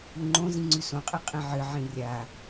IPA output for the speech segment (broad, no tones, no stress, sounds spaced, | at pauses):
u ŋ͡ǃ õ z ĩ ŋ͡ǀ ʉ s õ qʼ i qʼ ĩ ʕ ɨ ʕ ĩ rʲ a